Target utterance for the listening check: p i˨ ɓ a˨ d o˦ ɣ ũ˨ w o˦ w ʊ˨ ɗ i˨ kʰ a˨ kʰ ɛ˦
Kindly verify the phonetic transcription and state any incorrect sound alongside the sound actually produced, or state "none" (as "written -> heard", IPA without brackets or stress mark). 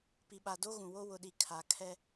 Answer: none